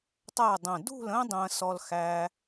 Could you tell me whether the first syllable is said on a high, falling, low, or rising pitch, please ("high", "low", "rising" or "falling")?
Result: falling